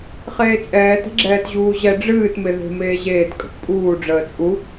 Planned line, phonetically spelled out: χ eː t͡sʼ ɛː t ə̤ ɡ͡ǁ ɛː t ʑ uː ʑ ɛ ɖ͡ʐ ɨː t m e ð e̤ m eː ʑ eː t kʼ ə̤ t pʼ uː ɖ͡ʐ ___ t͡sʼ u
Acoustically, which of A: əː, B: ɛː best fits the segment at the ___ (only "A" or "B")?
A